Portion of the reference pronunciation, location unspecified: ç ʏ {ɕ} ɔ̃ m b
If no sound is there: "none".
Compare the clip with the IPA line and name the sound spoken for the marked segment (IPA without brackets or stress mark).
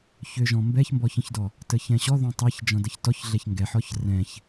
ʒ